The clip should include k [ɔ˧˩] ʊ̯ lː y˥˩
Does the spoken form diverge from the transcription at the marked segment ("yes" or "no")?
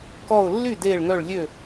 no